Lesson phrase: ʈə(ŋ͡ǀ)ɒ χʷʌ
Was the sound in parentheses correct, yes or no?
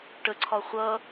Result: no